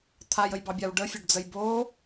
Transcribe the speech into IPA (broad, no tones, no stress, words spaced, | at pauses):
t̪ʰajəjbɑbʲaw ɖəfʲoɖd͡zəj bo